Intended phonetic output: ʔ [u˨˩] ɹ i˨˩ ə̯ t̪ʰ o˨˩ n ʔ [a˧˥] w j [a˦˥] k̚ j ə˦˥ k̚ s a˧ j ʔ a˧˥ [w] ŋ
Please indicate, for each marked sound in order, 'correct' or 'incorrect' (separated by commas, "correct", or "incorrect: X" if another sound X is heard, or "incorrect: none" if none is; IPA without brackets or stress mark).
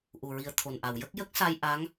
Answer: correct, incorrect: a˨˩˨, incorrect: ə˦˥, incorrect: none